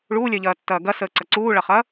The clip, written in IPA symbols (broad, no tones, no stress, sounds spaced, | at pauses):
ɭ uː lʲ œ ʎ ɐː tː ɐː ɡ ɐ s əː ǀ ɐ ǀ uː ɭ ɐ χ ɐ